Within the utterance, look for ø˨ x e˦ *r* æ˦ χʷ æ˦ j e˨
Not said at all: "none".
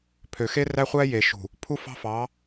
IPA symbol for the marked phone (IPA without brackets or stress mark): r